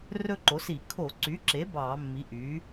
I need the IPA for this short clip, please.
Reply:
rɵ˦˥ǃo˩˥si˧˩˧ kʰo˧˩˧ǀy˩˥ǁe˩˥ bɑː˧˩˧mːi˩˥ʔyː˩˥

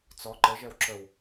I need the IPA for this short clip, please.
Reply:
t͡sɔ ǃəʒɛw ǁəw

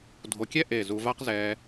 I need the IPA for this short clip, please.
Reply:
dʱo˨kʲɛ˦ ʔe˦˨zu˧ va˦qzɛː˧

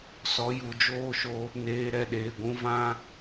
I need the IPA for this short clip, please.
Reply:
sɔ˨˦ju˨d͡ʒoː˦˨ʃo˧ | neː˨ ɾɛ˧ɗeː˨ɡʷũ˧vã˦

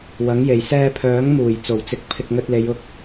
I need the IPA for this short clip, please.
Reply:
wɐ˨˥ŋ je˨˩j sɛː˧pʰœː˨˥ŋ muː˨˩jt͡so˨˩wt͡sɪ˨˥k̚ pʰɪ˧k̚ŋɵ˧t̚le˨˧j ʊ˥k̚

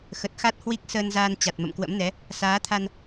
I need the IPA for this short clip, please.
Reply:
xə˨˩t̚xa˦˥t̚ hwi˦˥k̚ səː˧nzaː˧n t͡ɕa˨˩t̚mə̰˧˨mkwə̰˧˥mnɛ˨˦ | saː˨˦t̪ʰa˧n

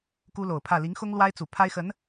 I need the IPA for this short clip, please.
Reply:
ku˥lo˨˩ʊ̯pʰä˥˩ li˧˥ŋxʊ˥ŋlwa˥ɪ̯t͡su˨˩ pʰa˥ɪ̯xə˧˥n

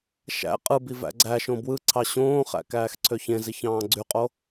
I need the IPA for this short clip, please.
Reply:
ʃæ̰ qʼɯbi væ̰ɡ͡ǀæʃõ bwɯǀʰɑ ɕõːχæ̰ kæːxǀʰøçẽziç ɑ̃ːɡ͡ǀyqʼo

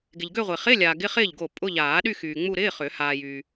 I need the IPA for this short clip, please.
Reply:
ɡɪ˨ʎɡø˥˧ʁʷɪː˨ χɪ˧˥˧ lʲaː˨ɡɪ˧˥˧χɪː˥˩ʎ ɡo˥˩ pʼʊ˧˥˧ʎaː˨˩˦ɗy˥˧ xyː˨ŋ͡mu˥˧ ɾɪː˧˥˧χʏ˨˩˦ haː˨jyː˨

